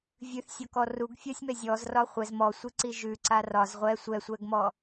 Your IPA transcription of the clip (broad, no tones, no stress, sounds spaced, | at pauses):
vʲ ʉ θ sʲ ɔ k ɔ r u ɡ fʲ ɒ sʲ m ɛ zʲ ɔ z r ɒ χʷ ɛ z m ɔ sʷ i ǀ i ʒ ʉ ǀ a r ɒ z ʁʷ ɛ sʷ ɛ sʷ ɛ ɡ m ɔ